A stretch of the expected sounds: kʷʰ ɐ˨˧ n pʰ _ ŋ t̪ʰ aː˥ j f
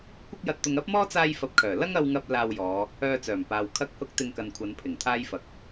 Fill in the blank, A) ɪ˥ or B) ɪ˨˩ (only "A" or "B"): B